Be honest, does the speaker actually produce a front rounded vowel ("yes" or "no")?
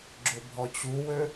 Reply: yes